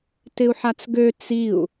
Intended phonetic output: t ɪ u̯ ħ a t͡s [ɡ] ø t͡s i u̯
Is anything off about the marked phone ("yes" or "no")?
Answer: no